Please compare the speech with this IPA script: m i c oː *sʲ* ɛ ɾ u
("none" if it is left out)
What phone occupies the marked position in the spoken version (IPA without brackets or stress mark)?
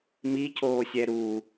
sʲ